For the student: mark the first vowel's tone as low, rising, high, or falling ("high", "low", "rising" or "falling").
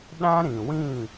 high